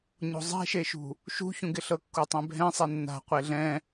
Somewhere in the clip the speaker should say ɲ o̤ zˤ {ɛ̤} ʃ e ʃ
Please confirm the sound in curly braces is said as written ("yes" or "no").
yes